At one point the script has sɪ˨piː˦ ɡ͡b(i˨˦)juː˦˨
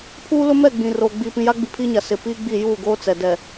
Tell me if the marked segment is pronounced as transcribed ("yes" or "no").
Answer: no